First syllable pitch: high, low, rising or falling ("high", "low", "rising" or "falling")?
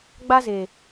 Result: high